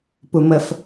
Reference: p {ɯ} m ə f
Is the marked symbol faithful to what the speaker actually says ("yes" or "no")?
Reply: no